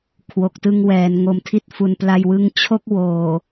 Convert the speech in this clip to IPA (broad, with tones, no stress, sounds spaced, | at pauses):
kʰ w o˨˩ k̚ t ɯ˧ ŋ w ɛː˩˦ n ŋ o˨˩ m tʰ i˦˥ t̚ f u˨˩ n p l a˧ j w ɯ˦˥ ŋ t͡ɕʰ o˥˩ k̚ w oː˨˩